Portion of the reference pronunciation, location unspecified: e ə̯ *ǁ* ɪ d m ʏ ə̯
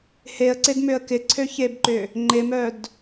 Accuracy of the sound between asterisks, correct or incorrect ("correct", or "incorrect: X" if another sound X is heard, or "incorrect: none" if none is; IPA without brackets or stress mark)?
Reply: incorrect: ǀ